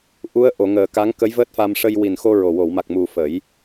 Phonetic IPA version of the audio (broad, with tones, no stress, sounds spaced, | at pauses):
ʔ u˧˥ ə̯ ʔ o˨˩˨ ŋ əː˨˩˨ k a˧˥ ŋ k ə˧˥ j v əː˦˥ t̚ f a˧ m ʂ ə˧ j w i˨˩ n x o˧ ɹ o˨˩ w o˨˩˨ w m a˨˩ k̚ m u˨˩ f ə˨˩˦ j